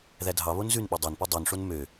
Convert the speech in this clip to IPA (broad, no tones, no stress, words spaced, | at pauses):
ðædʱɑβon zʉn ɓodˤɑnpo dˤœnʂon mø